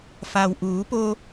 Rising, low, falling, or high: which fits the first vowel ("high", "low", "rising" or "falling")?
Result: low